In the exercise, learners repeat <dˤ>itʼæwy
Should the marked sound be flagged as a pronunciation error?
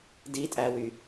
yes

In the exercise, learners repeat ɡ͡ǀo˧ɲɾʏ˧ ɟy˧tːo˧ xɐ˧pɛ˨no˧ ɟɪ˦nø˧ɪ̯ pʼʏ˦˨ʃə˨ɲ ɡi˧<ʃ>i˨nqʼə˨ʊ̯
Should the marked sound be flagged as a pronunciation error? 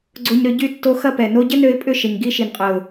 no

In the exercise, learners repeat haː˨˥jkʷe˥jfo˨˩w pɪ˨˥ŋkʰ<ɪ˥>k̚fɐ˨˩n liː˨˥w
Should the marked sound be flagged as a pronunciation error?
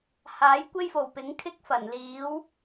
no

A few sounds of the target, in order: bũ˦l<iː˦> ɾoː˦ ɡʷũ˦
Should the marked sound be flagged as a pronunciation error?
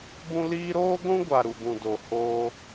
no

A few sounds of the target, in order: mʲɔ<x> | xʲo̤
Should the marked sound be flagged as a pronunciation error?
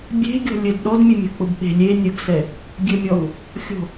yes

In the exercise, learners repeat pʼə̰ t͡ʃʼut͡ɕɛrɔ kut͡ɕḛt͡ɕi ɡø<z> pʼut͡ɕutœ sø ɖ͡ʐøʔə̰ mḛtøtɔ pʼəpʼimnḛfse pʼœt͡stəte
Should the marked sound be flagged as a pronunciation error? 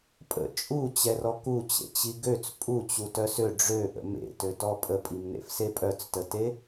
yes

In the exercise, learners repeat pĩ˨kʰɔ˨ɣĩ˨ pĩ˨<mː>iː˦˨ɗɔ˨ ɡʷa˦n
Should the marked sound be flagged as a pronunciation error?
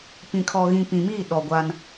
yes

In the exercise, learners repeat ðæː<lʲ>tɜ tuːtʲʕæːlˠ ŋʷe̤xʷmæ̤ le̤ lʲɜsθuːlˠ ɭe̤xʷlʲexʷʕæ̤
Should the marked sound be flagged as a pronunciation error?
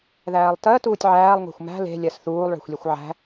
yes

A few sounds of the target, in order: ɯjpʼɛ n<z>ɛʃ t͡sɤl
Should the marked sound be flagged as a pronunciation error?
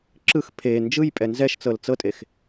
no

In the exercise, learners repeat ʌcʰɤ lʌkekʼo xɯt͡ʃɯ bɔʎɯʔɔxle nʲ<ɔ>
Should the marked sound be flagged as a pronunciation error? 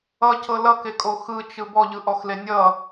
yes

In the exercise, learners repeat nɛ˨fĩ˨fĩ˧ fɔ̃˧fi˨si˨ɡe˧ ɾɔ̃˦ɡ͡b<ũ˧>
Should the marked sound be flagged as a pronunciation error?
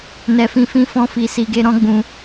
no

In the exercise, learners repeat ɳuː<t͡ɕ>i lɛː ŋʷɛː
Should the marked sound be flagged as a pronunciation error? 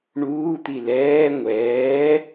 yes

